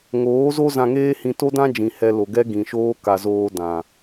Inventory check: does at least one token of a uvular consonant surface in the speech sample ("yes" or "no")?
no